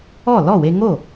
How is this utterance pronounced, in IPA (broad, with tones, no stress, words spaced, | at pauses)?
ɔ˥˩ lɔ˥˩we˧ ŋo˥˩